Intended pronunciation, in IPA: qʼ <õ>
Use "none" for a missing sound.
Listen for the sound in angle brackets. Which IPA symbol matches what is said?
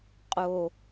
o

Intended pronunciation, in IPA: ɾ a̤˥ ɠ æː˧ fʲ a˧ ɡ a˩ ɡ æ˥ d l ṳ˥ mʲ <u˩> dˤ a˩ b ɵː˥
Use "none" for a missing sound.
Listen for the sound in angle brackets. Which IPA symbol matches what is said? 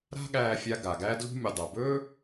u˩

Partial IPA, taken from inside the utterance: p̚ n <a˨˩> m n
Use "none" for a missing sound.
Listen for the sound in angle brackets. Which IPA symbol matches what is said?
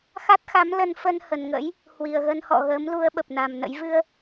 a˨˩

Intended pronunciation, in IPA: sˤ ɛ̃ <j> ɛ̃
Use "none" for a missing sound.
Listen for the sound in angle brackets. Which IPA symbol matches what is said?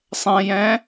j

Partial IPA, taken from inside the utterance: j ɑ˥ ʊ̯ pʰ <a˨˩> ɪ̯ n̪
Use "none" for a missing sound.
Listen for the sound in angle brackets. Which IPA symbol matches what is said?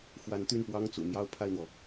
a˥˩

